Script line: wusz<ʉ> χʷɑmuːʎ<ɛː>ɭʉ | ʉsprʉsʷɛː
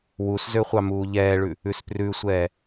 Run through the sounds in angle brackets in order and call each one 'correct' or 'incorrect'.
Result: incorrect, correct

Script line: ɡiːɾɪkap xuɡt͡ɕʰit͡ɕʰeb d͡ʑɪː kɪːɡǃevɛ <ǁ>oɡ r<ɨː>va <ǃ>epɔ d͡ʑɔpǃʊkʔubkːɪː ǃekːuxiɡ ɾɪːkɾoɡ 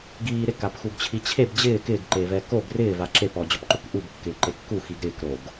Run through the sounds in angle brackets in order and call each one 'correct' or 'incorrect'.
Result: incorrect, incorrect, incorrect

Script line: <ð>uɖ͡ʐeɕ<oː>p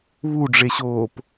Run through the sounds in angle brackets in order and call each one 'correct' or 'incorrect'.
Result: incorrect, correct

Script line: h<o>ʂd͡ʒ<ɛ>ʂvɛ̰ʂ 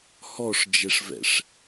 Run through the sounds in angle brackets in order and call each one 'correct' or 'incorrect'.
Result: incorrect, correct

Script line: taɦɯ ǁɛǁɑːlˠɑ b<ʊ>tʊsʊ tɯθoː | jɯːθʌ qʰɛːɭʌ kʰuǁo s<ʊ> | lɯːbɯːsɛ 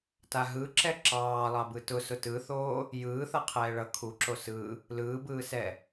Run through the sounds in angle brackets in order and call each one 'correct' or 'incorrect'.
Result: incorrect, incorrect

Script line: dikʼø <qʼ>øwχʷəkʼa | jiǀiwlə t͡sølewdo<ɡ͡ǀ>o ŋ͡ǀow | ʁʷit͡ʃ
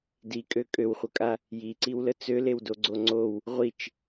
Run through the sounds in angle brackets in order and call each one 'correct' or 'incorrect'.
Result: incorrect, correct

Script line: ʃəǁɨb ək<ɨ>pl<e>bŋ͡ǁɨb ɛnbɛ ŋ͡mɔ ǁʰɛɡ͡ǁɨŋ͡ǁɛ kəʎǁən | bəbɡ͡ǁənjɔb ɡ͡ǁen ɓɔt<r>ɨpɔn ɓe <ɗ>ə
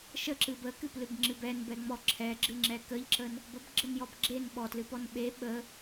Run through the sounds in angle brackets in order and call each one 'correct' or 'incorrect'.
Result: correct, incorrect, incorrect, incorrect

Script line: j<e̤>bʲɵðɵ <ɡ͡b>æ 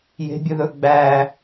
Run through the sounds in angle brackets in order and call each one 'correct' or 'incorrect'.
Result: correct, correct

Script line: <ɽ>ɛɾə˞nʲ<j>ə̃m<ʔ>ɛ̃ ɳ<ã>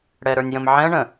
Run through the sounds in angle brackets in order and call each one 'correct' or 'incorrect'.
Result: correct, correct, incorrect, incorrect

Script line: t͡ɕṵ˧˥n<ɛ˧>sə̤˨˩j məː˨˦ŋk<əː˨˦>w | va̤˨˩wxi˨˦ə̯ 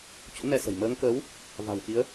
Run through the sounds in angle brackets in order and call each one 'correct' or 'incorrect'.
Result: correct, correct

